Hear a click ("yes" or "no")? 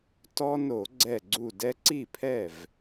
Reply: yes